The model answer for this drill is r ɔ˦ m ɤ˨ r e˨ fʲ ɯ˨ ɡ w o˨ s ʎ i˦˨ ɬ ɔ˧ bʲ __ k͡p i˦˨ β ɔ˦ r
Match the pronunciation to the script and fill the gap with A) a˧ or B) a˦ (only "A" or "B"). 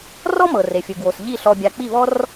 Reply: A